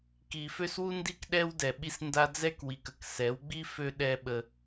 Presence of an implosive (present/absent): present